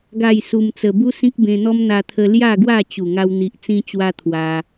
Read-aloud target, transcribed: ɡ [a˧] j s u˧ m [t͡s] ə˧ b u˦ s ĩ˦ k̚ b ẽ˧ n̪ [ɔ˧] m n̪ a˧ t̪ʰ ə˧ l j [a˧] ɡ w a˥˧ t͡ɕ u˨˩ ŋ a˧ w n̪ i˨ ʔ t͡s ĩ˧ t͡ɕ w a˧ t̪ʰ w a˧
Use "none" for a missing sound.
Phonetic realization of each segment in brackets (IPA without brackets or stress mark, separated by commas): a˥˧, t͡s, ɔ˦, a˥˧